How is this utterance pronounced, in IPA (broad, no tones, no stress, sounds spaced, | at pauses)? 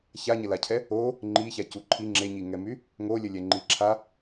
ç a ɲ ə l a cʰ ɛ | o | ŋ͡ǃ i ç a c u ǃʰ i ŋ͡ǁ e ɲ i ŋ ɛ m y | ŋ o lʲ ə lʲ ɛ ŋ͡ǃ i ǁʰ a